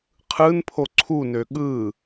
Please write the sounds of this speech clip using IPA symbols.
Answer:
qʰ ɯ n pʰ o ǀʰ u n ø ɠ ɯ

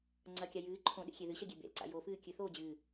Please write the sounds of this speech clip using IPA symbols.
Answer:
ŋ͡ǀ ɐ kʲ a j ɨː ǃʰ õ ɗ ḛ xʲ e ð ɨ ɕ ɐ ɡʲ e b ḛ l ǀ a̰ j o f ɨː kʲ ɨ θ oː d͡ʑ ɨː

